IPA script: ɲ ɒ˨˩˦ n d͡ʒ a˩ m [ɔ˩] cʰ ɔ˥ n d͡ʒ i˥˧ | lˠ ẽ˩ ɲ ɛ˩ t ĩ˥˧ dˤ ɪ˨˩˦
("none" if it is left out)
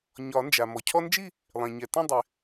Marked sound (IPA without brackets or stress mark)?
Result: ɔ˩